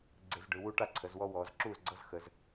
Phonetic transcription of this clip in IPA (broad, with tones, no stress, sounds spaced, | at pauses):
ɡ͡ǀ e˧˩˧ z ɖ ɯ˩˧ w u˦ ʈ a˥˩ ǀʰ ə˩˧ z w ɔ˦ w ɔː˩˧ z ǁ uː˥˩ z ɡ͡ǀ ɤ˦ z x əː˩˧ z